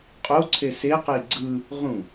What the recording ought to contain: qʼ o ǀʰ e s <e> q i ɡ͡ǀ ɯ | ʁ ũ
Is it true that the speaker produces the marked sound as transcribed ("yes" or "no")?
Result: yes